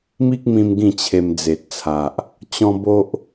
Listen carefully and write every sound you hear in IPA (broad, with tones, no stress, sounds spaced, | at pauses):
m i˦ k̚ m ĩ˧ m ɡ ĩ˥˧ t͡ɕʰ e˧ m d͡z e˨ t̚ t͡sʰ a˨ ʔ | t͡ɕ ɔ̃˦ b o˦ ʔ